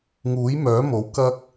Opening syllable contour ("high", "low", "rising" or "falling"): rising